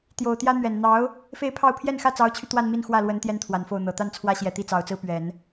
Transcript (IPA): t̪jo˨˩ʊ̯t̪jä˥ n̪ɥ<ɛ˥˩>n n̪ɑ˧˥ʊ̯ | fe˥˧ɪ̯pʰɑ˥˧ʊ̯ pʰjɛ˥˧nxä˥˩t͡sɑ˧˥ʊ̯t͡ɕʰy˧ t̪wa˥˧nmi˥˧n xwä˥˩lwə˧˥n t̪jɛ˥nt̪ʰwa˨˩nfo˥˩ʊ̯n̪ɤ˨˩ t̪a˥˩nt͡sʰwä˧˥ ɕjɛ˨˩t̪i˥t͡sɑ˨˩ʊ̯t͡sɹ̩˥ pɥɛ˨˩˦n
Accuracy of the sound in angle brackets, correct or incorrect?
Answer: incorrect: ɛ˨˩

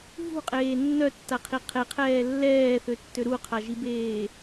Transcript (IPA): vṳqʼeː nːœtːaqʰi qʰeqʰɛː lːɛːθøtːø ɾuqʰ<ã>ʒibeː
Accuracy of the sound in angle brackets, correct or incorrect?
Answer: incorrect: a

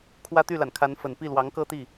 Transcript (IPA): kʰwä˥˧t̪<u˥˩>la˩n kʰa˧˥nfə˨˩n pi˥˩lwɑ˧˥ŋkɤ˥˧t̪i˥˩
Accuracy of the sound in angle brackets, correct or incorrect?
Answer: incorrect: y˥˩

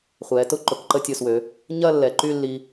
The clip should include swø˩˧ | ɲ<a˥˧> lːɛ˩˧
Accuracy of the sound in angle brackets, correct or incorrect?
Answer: incorrect: ɐ˥˧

